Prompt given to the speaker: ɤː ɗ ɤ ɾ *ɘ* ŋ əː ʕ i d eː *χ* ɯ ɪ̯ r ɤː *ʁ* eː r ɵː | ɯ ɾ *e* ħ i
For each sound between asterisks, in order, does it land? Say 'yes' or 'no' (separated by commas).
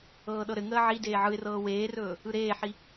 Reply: yes, no, no, no